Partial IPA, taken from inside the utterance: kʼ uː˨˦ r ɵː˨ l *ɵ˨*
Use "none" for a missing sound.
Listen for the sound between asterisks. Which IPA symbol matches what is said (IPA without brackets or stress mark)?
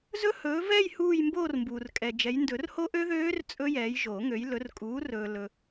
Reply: ɵ˨